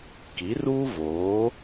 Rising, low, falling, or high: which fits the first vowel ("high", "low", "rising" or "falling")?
rising